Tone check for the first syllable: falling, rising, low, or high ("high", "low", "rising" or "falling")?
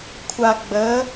low